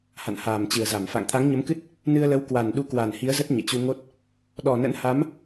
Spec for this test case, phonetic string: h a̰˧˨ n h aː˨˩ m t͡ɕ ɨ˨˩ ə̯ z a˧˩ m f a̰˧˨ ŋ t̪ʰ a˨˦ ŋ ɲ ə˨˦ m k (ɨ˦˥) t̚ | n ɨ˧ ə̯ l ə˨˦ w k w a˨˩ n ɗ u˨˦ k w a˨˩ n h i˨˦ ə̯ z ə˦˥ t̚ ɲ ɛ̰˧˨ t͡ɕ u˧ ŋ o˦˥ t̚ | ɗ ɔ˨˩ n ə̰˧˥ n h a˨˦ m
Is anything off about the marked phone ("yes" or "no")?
no